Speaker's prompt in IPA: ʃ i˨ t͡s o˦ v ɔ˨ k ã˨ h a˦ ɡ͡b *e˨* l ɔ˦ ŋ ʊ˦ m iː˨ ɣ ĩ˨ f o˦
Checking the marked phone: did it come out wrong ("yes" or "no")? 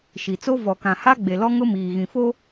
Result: no